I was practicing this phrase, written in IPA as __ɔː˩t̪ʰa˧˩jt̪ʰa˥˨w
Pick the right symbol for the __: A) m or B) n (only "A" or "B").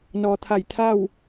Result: B